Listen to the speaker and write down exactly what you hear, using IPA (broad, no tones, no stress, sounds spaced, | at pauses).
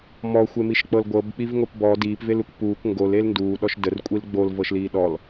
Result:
m ɔ xʷ e m i ʃ k͡p ɤ l ɡʷ ɤ b k͡p i v ŋ o p b ɔ d iː p v e l u k p uː k ŋ ɡ o l e l n d uː ɗ ɔ ʃ d ə r kʷʼ i l ɡ͡b o l v ɤ ʃ l iː ɗ ɔ l